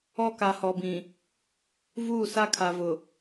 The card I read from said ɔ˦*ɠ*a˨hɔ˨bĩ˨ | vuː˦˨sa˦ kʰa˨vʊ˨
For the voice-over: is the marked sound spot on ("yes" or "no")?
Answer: no